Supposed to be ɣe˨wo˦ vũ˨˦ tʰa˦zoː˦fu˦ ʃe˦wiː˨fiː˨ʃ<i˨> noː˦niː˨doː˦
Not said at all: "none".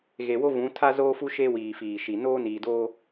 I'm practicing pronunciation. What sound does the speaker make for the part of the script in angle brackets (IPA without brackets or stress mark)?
i˨